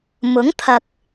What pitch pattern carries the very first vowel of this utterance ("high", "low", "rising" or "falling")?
rising